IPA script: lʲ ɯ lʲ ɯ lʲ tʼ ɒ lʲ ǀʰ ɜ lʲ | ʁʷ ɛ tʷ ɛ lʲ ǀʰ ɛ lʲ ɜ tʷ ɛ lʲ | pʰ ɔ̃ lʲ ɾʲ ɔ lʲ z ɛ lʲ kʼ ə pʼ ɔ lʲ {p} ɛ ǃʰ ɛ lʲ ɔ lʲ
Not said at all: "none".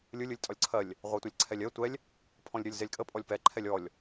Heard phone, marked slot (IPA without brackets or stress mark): p